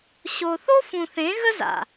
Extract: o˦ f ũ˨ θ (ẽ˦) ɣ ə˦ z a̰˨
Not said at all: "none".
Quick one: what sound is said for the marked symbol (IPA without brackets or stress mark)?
ẽ˨˦